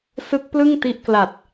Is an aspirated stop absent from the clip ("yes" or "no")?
yes